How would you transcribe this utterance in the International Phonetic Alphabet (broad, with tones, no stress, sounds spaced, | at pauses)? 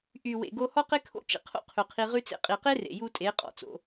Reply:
ʔ y˨ w ḛ˨ ɡ o˧ h ɔ˦ q e˦ kʰ o̰˦ t͡ʃ ḛ˧ qʰ o̰˦ qʰ ʉ˨ qʰ i˧ ʁ ʉ˦ t͡s ḛ˦ qʼ i˨ q e˦ r ḛ˨ j u˧ tʼ e˨˦ qʼ ɔ̰˨ t͡s o̰˧